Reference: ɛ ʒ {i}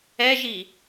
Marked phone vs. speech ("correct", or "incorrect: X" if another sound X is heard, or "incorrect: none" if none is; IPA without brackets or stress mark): correct